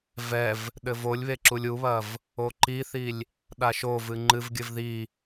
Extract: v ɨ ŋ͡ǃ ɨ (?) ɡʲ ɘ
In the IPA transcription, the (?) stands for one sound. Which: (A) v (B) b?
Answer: A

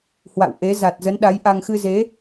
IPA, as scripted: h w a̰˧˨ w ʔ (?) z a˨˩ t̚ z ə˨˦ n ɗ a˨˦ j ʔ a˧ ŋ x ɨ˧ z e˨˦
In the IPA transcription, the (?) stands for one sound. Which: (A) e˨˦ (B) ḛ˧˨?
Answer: A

